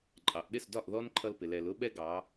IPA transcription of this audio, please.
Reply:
ǃʼ ɑ˩˧ ʔ ɗ ɪ˥˩ s d ɒ˥˩ ʔ ð ɔ˦ n ǃʰ ʌ˦ l p ɪ˩˧ l ɛ˩˧ l ʊ˦ ɓ ɛ˦ ɡ ɑ˩˧

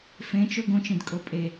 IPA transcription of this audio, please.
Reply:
f ẽ t͡ʃ ɵ ɡ õ t͡ʃ ĩ d kʼ o pʼ e

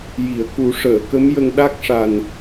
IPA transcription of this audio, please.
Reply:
j i˨˩˨ ə̯ k u˨˩˦ ʂ əː˨˩˨ k ə˧˥ m j ə˧ ŋ ɗ a˦˥ k̚ ʂ a˨˩ n

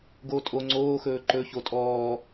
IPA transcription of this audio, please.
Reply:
ɡ oː tʼ o ŋ͡ǀ oː x ɵː ǃ ɵ ç o tʼ ɔː

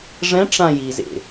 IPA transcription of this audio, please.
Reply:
ʐ ɛ̃ ʈ͡ʂ ã j i z ḛ

